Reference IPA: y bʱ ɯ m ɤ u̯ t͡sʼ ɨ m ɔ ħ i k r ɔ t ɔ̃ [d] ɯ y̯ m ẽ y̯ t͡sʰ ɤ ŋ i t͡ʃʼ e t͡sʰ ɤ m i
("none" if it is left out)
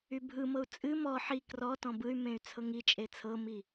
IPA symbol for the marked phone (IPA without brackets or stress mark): b